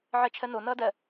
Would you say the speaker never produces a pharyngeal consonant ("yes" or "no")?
no